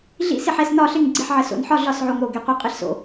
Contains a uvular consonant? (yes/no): yes